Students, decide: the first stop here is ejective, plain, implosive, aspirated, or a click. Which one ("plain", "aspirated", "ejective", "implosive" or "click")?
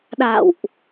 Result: implosive